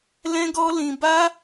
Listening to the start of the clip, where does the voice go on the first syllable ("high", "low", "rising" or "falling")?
high